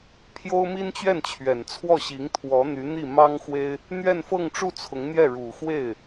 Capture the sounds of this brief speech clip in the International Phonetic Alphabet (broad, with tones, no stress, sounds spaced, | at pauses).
pʰ j o˥ ʊ̯ m i˥ n t͡ɕ ɥ ɛ˥˩ n t͡ɕʰ ɥ ɛ˨˩ n t͡sʰ w ɔ˥˩ ɕ i˧˥ ŋ t̪ʰ w ɔ˧˥ n̪ y˧˥ n̪ i˥˩ m ɑ˥ ŋ x w e˥ ɪ̯ | n̪ ɥ ɛ˥˧ n f ɤ˥˧ ŋ ʈ͡ʂ u˥˩ t͡sʰ ʊ˧˥ ŋ n̪ j ɛ˥˩ ɻ u˨˩ x w e˥˩ ɪ̯